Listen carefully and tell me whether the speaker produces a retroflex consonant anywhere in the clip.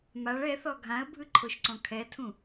yes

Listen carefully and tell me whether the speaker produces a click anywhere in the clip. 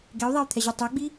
no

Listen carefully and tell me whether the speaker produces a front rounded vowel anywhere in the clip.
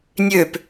yes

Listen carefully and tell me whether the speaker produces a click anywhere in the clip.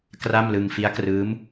no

